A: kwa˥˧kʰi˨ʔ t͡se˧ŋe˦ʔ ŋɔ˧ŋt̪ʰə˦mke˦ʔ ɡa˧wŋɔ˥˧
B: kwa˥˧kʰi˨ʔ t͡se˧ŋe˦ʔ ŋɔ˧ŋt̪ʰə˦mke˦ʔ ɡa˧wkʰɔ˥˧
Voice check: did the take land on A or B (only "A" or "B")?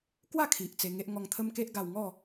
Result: A